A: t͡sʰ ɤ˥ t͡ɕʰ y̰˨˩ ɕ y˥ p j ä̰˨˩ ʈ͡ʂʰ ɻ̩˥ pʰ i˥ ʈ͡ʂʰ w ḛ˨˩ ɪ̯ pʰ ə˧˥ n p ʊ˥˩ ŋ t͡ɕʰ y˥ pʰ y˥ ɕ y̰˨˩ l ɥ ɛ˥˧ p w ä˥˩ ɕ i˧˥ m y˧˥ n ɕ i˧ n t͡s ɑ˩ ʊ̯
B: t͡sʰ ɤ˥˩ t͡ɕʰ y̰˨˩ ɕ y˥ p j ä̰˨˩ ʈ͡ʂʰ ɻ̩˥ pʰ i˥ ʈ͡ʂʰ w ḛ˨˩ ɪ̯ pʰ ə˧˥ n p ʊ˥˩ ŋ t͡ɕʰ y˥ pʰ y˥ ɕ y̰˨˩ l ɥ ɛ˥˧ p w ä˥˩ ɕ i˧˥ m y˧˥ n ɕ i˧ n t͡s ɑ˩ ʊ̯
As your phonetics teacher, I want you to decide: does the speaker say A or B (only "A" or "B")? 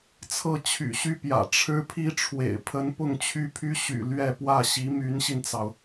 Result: B